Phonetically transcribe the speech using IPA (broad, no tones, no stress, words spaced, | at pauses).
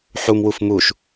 ħumwuf muʃ